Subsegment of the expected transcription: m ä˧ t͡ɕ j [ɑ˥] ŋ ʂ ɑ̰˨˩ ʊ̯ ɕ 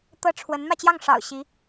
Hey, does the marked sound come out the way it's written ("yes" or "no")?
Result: no